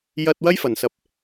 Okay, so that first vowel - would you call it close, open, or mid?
open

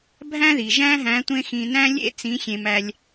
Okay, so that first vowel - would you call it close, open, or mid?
open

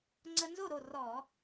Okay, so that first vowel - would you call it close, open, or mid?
mid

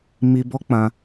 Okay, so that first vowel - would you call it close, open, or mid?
close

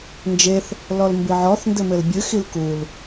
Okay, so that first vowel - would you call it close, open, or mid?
mid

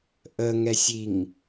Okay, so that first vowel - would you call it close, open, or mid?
mid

